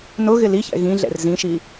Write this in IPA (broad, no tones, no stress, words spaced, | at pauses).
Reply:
nʊ ɣɪliçɛ̰ ɣĩ ɮɛ̰rzĩʃi